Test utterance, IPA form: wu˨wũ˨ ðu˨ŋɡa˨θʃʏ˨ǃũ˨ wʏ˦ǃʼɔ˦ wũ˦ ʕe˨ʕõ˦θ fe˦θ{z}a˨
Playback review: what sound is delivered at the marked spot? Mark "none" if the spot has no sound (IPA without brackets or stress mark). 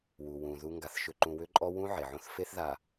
ð